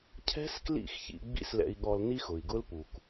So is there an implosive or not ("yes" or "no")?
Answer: yes